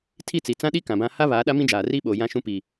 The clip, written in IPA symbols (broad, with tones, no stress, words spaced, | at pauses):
tʰi˦˨t͡si˨ t͡sã˦ɗi˦ kã˨bã˦ ha˦ βaː˨˦ɗa˦mĩ˦d͡ʒaː˨ riː˦ɓoː˨ jã˦ʃũ˦pi˨